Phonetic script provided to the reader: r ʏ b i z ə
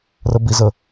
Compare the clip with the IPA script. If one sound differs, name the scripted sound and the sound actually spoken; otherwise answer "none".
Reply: ʏ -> ə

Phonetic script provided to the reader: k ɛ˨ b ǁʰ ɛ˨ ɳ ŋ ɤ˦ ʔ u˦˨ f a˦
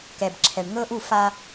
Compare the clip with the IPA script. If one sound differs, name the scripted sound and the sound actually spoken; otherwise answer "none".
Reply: none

